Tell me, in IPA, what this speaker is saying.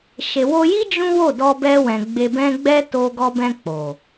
ʃe˨wo˧ji˦ d͡ʒũ˦wo˦˨ dɔ˧bɛ˧wɛ̃˨ ɡ͡be˧bɛ̃˦ ɡ͡bɛ˦ to˧ ɡɔ˧bɛ̃˧ k͡po˨

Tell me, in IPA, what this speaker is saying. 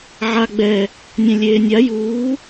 ʕa ɡ͡bɛ | nʲɛ̃lʲeːnʲa juː

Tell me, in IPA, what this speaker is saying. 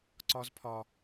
ǀɒ˦zpʰɒ˦

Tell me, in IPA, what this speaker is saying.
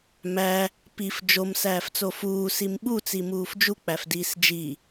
mæ | pif d͡ʒom sæːft͡sofuː simɓut͡simuːf d͡ʒuk͡pæfdiːs d͡ʒi

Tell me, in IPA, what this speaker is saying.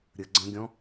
ɾʲə ɡ͡ǀə̃ɡʲɔ̃

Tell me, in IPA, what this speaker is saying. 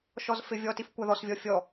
ʃɔzfɪvʲɔtif kʷaðɔsvʲɔ fʲɔ

